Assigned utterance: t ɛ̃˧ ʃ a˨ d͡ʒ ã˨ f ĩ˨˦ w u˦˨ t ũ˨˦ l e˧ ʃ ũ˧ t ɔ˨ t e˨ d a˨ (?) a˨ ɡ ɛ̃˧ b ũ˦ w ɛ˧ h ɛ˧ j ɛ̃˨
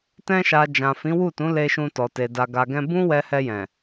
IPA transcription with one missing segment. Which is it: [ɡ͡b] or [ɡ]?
ɡ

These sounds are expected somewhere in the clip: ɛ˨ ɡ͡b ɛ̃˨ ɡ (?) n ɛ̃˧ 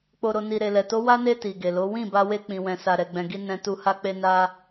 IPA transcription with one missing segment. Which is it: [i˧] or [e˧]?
i˧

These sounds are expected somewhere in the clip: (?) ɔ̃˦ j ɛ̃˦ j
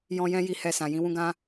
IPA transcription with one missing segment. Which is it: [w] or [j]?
j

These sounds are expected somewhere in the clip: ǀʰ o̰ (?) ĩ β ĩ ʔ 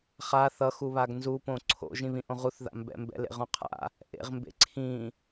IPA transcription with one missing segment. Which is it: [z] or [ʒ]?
ʒ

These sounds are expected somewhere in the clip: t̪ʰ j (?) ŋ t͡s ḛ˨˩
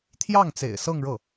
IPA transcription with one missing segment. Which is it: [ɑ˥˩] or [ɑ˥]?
ɑ˥˩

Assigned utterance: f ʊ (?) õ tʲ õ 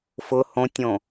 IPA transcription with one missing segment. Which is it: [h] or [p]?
h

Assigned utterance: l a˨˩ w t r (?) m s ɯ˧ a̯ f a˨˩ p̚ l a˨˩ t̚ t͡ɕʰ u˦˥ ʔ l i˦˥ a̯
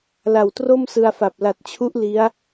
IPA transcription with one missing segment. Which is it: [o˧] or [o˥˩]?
o˥˩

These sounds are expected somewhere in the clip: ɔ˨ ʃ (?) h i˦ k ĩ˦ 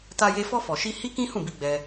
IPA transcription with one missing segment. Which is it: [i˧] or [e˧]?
i˧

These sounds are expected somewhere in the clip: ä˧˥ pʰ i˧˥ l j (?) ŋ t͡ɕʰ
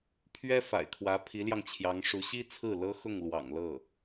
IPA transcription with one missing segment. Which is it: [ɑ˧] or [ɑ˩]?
ɑ˧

